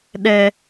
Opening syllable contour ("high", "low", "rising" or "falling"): high